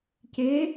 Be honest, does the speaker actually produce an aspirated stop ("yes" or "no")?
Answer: no